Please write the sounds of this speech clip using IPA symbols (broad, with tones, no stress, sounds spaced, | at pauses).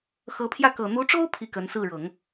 x ɤ˧˥ pʰ j ä˥˩ k ɤ˨˩ n̪ u˧˥ ʈ͡ʂ o˥ ʊ̯ pʰ i˥˩ k ə˧˥ n s ɹ̩˥˩ ɻ ɤ˨˩˦ ŋ